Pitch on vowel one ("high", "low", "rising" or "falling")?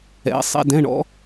rising